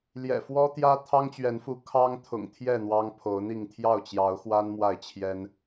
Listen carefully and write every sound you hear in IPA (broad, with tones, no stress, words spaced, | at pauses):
ljɛ̰˨˩fwɔ˦t̪jä˦ t̪ʰɑ˦ŋt͡ɕɥɛ˨˦nfu˨˦ kʰɑ˦ŋ t̪ʰʊ̰˨˩ŋt̪ʰjɛ˥˨ n̪wɑ˦ŋpʰo˨˦ʊ̯n̪i˥˨ŋ t̪ʰjɑ˥˨ʊ̯t͡ɕjɑ˨˦ʊ̯xwa˦n mwa˥˨ɪ̯t͡ɕʰjɛ˦n